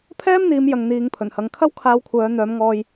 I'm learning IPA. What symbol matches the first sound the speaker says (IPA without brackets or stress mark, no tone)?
pʰ